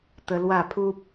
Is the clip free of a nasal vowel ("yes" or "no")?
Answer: yes